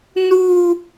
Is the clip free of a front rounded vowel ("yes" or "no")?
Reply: yes